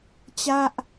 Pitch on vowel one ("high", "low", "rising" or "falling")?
falling